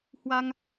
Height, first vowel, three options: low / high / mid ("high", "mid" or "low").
low